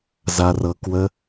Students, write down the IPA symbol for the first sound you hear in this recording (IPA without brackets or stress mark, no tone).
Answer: z